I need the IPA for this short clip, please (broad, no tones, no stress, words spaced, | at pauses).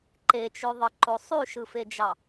ǃet͡ʃøðˤɯǃo sˤyʃɯfed͡ʒɑ